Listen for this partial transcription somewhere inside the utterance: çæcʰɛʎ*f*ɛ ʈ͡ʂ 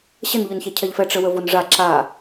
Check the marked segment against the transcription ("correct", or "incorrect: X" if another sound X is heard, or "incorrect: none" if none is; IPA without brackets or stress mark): correct